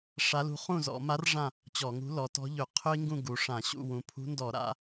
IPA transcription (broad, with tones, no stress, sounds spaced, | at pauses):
ʂ a˧˥ l ṳ˧˥ χ ũ˥˨ z ɔ̰˧˩˧ m a˧˥ r ʐ ã˥˨ | t͡ɕ ɔ˧˩˧ ŋ ṳ˧˥ l ɔ˩˧ t ɔ̤˧˥ ʎ ɵ˧˩˧ qʰ ɵ˥ i̯ ŋ ɡ ũ˥˨ ɡ u˩˧ ʂ ã˧˩˧ ɕ ṵ˥˨ w ũ˩˧ pʰ ṳ˧˥ n d ɔ˧˩˧ ɾ a̰˩˧